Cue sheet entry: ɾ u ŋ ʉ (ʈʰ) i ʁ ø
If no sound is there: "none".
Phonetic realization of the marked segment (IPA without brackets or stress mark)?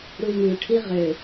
ʈʰ